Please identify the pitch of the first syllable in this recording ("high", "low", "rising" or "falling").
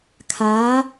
rising